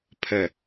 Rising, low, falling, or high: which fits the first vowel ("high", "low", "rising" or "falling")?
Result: low